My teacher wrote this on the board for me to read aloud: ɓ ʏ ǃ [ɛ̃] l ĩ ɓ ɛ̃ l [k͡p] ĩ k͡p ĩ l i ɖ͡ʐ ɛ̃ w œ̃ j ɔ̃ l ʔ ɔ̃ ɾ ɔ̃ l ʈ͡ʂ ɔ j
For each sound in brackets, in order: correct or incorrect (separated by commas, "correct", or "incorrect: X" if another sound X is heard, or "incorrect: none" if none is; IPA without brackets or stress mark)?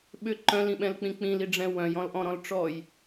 incorrect: œ̃, correct